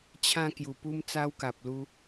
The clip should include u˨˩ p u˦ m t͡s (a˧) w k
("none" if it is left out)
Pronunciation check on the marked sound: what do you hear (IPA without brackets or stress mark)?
a˦